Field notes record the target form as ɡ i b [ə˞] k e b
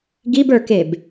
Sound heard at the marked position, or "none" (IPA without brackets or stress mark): ə˞